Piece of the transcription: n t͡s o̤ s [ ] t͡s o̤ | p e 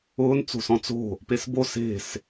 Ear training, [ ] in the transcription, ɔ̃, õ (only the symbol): ɔ̃